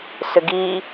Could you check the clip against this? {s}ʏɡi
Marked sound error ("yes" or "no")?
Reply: no